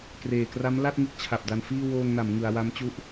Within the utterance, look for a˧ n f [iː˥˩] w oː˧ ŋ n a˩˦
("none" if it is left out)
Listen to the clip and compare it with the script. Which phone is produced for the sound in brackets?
iː˥˩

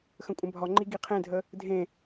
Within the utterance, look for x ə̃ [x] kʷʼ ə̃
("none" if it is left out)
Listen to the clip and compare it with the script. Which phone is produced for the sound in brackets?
none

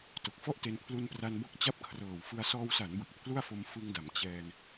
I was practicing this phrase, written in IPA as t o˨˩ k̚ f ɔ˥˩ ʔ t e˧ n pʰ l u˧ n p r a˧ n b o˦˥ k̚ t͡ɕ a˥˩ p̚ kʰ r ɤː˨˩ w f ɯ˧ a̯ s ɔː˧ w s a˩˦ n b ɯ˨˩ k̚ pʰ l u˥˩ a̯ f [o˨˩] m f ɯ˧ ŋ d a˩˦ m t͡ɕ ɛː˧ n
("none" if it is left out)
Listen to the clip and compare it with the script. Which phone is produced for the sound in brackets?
o˧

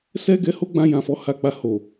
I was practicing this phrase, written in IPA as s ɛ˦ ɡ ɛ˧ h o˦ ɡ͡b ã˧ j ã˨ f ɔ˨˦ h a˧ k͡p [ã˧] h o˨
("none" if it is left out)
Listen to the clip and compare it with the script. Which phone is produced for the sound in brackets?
a˧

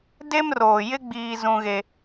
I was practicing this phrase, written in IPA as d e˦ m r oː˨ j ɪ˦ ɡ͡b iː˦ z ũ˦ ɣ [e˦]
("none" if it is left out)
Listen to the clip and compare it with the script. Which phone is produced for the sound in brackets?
e˦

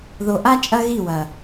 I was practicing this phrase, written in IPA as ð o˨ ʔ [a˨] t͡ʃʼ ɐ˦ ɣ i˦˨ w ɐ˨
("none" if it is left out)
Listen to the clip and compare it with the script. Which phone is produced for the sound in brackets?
a˦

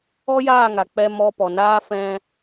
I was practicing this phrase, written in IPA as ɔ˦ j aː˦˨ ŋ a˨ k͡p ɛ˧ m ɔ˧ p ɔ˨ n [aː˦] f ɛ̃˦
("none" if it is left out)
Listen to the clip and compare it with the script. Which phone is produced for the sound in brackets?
aː˧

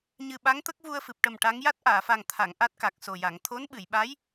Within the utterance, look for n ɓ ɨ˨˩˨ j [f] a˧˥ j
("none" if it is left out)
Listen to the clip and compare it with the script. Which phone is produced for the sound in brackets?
ɓ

